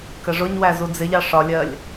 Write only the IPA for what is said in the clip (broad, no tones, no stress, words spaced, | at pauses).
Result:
kəʐʊɲwæ zud͡zɪʎɑ ʂɒlʲɜlʲ